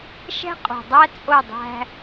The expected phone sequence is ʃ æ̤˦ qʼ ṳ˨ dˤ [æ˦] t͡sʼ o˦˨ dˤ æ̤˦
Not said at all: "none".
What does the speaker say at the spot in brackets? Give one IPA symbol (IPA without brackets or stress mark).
æ˦